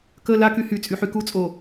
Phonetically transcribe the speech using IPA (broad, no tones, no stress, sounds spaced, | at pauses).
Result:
k ə l a k y h y t͡sʼ y ħ y k u t͡sʼ o